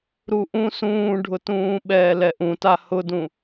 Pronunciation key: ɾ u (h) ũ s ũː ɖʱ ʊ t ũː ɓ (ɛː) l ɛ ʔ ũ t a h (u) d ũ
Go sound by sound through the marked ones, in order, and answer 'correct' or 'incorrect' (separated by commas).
incorrect, correct, incorrect